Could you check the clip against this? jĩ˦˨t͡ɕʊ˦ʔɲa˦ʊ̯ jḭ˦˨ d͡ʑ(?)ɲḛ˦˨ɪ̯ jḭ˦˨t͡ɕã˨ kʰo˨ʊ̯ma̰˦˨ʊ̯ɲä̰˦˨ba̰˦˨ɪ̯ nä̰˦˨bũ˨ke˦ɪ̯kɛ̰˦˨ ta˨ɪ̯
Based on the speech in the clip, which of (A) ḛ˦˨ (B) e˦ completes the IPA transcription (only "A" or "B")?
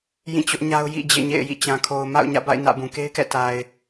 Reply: A